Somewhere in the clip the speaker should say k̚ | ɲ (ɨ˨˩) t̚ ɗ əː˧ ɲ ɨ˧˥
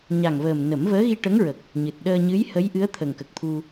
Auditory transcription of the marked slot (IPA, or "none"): ɨ˨˩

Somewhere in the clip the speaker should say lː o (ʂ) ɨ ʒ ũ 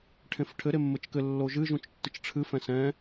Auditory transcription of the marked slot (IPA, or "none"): ʒ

